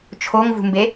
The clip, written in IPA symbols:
t͡ʃʰoŋvṳmbe

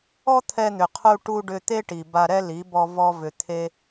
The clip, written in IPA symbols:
ɔ˦t̪ʰɛ˧ n̪ʏ˨qʰu˧ ʈu˧ɖʏ˧ t̪e˦ʈi˨ ba˧ɾɛ˦ li˨˦bɔ˧ vɔ˧vʏ˨ t̪ʰe˦

